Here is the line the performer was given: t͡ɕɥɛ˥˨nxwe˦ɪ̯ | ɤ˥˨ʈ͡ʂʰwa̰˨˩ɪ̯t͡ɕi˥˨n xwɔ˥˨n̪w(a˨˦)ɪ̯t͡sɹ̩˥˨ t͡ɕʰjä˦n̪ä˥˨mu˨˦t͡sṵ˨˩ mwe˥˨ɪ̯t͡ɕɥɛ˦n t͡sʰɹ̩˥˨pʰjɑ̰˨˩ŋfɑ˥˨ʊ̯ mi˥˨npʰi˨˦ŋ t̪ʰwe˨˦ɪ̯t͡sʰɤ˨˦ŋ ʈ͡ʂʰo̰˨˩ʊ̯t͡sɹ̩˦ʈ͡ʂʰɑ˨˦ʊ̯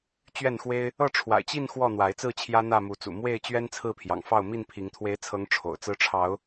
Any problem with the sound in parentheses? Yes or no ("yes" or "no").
no